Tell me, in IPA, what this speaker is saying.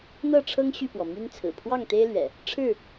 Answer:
n̪ɤ˥˨ʈ͡ʂʰɤ˦ŋ ɕy˥˨pwɔ˩ my˦nt͡sʰɹ̩˨˩ pʰwɑ˥˨ŋt̪e˦ɪ̯lɥɛ̰˨˩ | ʈ͡ʂʰɻ̩˥˨

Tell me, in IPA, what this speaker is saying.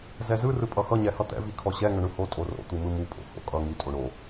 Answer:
zɛzɯ rɯpʼʌxʌ ɲɛhʌt̪ɛ̰ vikʰɔɕɛ ŋʌɳɯho tʼoro̰ t̪umɯmu pʼo̰ho̰ kʼʌ ŋi tʼoɳo

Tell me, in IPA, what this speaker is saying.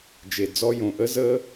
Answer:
d͡ʒe˨d͡zɔ˧jõ˨ ʔə˦zəː˦

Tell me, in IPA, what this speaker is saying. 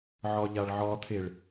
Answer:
ʕɒʎaɭʕɒt̪ʰeɭ

